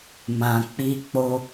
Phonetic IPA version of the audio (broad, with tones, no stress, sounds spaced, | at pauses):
m ã˨ k͡p i˧ k͡p o˧